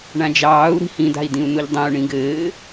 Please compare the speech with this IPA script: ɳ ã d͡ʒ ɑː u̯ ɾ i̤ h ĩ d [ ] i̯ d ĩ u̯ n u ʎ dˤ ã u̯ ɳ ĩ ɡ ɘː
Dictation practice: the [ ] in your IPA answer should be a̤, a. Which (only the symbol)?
a̤